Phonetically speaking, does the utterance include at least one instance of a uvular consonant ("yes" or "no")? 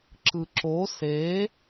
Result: no